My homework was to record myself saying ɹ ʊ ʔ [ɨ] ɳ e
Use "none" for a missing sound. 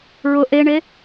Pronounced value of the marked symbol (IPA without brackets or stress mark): e